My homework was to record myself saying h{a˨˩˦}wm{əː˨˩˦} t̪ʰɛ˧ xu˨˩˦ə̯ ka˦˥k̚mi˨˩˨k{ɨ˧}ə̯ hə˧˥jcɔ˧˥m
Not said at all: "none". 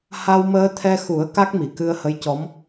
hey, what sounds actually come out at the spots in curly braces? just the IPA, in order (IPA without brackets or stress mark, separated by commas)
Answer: a˧, əː˧, ɨ˧